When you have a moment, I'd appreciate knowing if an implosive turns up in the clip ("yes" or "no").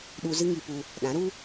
yes